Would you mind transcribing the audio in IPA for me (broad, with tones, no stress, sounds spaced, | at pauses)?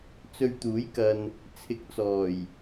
t͡s ɵ˧ ɥ t̪ uː˨˥ j k ɐ˨ n | t͡sʰ ɪ˧ k̚ t͡s ɔː˨˩ j